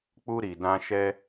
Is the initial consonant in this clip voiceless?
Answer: yes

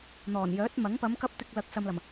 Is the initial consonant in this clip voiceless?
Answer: no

